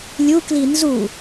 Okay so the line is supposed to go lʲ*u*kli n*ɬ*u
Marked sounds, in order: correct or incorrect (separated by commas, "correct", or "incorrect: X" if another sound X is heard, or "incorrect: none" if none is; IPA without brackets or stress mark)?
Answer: correct, incorrect: z